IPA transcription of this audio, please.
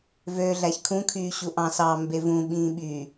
v ø ɮ æ ç kʰ ũ kʰ yː ɕ u ʔ ɑ̃ s ɑ m b e v ũ ɓ ĩː ɓ y

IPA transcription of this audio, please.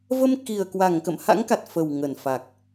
v ə˧ m k i˨˩ ə̯ k w a˧˩ ŋ k ə̰˧˨ m h a̰˧˥ ŋ k a˨˩ t̚ f ə˨˩ w ŋ ə˧˩ n f a˨˩ k̚

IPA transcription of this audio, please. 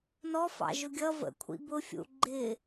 n ɔ f ɑ̰ ʒ ʊ ɡʲ ʌ v ə̰ kʷʰ ḭ b ʊ fʲ ṵ ɡ͡ǃ ɪ

